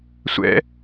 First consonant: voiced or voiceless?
voiceless